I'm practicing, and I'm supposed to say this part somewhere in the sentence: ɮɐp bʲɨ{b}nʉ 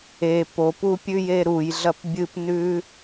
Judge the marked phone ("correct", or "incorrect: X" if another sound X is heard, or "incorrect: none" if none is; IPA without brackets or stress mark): incorrect: p